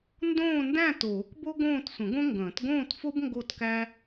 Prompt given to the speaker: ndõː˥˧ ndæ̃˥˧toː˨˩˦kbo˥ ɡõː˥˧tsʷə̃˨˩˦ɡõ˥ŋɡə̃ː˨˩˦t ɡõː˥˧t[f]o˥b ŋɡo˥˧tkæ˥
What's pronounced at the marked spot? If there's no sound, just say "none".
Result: f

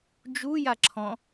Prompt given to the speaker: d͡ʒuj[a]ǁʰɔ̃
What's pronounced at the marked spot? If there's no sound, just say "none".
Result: a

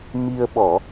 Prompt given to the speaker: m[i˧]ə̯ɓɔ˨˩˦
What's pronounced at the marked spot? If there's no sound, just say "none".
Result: i˧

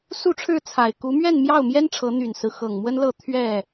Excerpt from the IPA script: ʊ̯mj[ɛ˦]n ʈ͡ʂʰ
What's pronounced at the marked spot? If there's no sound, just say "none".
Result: ɛ˦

